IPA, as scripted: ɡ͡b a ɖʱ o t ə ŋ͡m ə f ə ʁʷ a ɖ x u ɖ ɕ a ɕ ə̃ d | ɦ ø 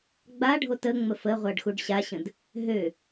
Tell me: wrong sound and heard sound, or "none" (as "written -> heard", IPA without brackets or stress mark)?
none